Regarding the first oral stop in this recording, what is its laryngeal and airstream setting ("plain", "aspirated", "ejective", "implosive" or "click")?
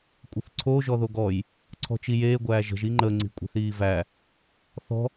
ejective